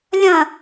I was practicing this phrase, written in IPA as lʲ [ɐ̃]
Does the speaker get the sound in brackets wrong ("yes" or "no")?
no